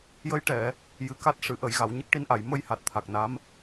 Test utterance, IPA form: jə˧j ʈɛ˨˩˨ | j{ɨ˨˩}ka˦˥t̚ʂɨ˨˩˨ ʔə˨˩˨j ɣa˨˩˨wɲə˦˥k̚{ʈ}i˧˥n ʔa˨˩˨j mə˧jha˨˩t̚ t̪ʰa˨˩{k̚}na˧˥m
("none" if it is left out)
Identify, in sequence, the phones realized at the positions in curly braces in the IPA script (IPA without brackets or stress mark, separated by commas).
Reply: ɨ˨˩, ʈ, k̚